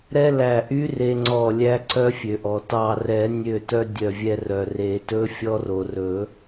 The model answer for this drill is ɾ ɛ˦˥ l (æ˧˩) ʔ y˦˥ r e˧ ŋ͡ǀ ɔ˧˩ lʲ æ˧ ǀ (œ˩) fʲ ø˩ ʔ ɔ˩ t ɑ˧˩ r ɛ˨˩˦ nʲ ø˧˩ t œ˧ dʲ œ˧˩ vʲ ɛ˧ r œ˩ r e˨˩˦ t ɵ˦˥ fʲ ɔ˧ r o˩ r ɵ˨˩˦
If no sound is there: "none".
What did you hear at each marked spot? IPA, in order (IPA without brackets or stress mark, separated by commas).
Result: æ˧˩, œ˧